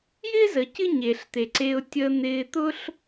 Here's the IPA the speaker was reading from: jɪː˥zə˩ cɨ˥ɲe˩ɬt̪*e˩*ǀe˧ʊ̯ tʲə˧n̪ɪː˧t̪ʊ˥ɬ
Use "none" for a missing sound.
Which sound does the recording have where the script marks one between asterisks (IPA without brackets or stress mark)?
e˩